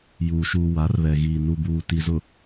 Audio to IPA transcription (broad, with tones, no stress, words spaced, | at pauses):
juː˨ʃuː˨ wa˨˦rβɛ˨ɣiː˨ nu˨ buː˨ti˨zʊ˨